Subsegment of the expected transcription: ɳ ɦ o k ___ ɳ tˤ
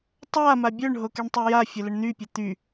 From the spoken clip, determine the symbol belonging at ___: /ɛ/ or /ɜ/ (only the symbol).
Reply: ɛ